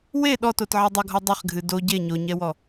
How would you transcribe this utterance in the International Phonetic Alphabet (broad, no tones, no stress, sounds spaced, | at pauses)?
w e ɗ ɔ t o t ʕ e dˤ ɐ ɡʱ ɔ dˤ e χ ɡʱ ɨ d o ɟ e ɲ o ɲ ɛ w ɔ